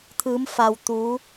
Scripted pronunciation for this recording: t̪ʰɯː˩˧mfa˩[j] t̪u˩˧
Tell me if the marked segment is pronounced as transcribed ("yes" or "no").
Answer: no